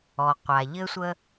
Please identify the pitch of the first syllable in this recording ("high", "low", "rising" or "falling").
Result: low